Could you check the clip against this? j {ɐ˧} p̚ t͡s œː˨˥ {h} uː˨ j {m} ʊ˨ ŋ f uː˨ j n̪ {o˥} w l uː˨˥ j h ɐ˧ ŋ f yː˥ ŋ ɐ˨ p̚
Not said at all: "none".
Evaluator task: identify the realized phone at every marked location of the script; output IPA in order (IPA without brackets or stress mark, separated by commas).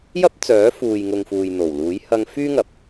ɐ˥, f, ŋ, o˨˩